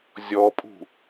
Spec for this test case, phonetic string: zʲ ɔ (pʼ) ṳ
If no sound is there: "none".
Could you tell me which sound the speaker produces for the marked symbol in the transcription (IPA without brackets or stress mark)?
pʼ